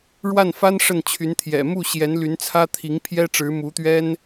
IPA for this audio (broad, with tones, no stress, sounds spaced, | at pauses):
ɻ w a˥˩ n f a˥ n ʂ ə˥˩ n t͡ɕʰ y˧˥ n t̪ʰ j ɛ̰˨˩ m u˥˩ ɕ j ɛ˧˥ n l y˧˥ n t͡sʰ ä˥ t̪ʰ i˧˥ ŋ pʰ j ɛ˥ ʈ͡ʂ ɻ̩˧˥ m u˧˥ t̪ ɥ ɛ˥ n